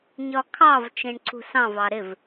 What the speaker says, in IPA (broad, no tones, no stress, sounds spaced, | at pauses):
ɲ ɒ kʰ ɑ v t͡ʃ ĩ ɳ ǀ ṳ s ɑ̃ v ɑ ɾ ɪ v